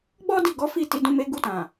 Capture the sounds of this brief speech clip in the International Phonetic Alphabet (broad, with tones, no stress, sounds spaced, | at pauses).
ɡ͡b ɔ˦ d i˦˨ ɡ ɔ˨˦ f i˦˨ t i˨˦ d ũ˧ m e˧ ɡ u˧ t ã˨